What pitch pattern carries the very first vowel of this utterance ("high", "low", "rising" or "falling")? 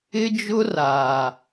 high